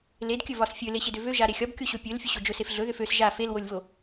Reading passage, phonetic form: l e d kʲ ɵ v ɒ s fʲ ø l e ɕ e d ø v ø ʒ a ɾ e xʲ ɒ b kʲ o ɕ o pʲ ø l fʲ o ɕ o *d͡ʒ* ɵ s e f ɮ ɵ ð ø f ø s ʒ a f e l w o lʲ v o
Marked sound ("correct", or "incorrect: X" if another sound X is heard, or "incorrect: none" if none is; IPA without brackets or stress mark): correct